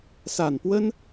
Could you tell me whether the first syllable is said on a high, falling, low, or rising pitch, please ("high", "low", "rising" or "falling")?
low